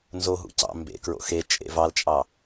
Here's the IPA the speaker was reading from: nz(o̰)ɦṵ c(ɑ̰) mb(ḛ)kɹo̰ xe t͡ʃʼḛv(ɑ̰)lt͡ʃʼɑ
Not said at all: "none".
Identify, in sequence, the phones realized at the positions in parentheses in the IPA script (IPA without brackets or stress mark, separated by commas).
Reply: o, ɑ̰, ḛ, ɑ